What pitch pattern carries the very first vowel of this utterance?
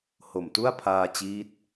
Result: low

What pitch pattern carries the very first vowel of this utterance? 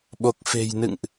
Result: low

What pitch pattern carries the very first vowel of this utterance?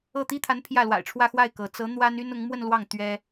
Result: falling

